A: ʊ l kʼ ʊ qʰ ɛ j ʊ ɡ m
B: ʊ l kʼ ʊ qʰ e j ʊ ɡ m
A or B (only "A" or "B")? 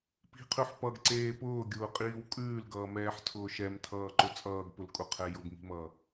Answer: A